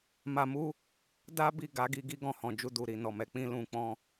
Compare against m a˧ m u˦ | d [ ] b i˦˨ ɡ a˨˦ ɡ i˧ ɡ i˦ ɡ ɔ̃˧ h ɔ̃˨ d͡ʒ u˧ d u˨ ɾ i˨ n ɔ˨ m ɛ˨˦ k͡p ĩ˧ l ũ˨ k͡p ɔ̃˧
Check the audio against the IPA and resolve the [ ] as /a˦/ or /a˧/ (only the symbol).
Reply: a˦